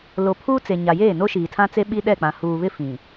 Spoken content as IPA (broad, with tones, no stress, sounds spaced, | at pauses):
l o˨ pʰ uː˦ t͡s e˨ ɲ a˨ j eː˦˨ n o˦ ʃ iː˨ tʰ ã˦ t͡s e˦ ɓ i˦ ɗ ɛ˦˨ k͡p ã˨ h uː˨ β ɪ˦ f ĩ˨